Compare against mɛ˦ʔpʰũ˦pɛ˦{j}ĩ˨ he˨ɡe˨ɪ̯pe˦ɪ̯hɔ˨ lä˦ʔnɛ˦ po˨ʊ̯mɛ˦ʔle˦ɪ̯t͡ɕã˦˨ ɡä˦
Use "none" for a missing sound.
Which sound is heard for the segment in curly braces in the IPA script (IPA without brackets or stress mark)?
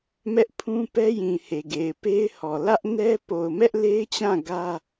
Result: j